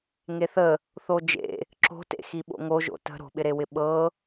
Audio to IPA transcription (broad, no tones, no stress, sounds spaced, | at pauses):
ŋ e θ ə | θ o d͡ʒ ḛ | ǁ o̤ t ḛ x i ɓ o̰ ŋ o ʒ o̰ t ə̤ ɾ o̤ ɓ ɪ ɾ e w ɪ ɓ ɤ